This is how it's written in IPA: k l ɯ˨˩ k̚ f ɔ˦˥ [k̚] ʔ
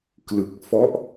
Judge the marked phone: incorrect: none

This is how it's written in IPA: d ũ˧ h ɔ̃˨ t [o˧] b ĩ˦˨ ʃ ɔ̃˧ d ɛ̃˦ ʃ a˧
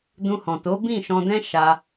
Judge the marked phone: incorrect: o˨˦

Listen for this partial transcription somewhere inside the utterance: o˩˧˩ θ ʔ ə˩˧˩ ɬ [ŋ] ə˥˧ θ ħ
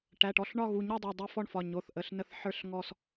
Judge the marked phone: incorrect: n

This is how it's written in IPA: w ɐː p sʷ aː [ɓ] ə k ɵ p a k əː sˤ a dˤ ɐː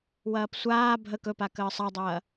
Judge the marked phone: incorrect: bʱ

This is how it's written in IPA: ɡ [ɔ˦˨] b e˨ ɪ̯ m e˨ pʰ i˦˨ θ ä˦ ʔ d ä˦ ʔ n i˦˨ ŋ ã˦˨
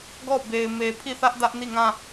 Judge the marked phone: correct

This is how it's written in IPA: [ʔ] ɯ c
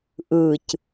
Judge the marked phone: correct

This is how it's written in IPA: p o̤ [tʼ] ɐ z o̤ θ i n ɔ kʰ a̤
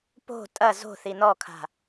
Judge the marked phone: correct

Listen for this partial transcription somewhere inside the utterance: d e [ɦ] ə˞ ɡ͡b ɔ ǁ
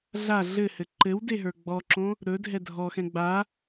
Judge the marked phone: correct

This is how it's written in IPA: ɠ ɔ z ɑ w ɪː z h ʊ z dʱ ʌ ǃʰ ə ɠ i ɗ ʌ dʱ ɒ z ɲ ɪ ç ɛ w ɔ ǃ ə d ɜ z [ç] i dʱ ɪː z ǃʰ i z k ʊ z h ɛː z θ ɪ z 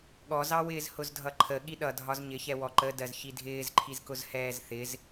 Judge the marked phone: correct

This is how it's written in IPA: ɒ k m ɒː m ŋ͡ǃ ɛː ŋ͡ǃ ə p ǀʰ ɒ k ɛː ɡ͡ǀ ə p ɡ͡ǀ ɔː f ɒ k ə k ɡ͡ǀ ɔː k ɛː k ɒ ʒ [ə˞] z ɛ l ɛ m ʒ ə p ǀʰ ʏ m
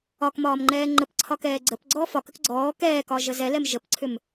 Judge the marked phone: incorrect: ə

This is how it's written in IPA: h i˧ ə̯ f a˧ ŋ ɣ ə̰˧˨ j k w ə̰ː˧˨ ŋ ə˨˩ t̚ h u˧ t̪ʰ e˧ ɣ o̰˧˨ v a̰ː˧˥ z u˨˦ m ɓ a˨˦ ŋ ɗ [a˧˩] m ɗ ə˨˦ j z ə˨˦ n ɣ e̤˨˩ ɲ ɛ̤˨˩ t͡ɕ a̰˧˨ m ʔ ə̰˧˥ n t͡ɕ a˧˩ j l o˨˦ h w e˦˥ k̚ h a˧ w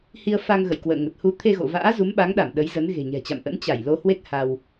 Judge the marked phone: correct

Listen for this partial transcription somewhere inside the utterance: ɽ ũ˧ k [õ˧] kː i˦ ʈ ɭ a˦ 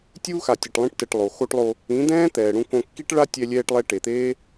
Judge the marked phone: correct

